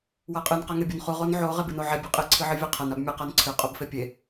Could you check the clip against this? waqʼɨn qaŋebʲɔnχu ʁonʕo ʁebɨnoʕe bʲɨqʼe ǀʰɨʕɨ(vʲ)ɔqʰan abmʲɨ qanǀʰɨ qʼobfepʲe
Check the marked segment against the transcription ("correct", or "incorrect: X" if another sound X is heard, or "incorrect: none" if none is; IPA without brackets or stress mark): correct